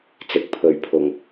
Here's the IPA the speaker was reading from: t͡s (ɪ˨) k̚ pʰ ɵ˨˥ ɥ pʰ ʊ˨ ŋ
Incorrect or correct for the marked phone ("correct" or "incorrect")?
incorrect